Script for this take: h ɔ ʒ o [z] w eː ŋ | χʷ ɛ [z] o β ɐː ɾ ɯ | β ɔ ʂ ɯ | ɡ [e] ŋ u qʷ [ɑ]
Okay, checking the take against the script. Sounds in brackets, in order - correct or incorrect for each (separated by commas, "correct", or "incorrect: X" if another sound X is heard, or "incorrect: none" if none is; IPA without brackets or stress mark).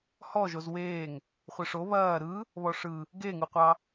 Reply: correct, incorrect: ʂ, correct, correct